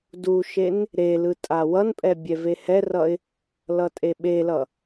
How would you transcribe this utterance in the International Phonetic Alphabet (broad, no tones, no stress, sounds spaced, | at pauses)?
d u ʃ e n | ɾ e l ɯ tʼ a w ʌ n pʼ ɛ bʲ ɛ v e h ɛ r ʌ ɪ̯ | l ʌ tʼ e ɓ e l ʌ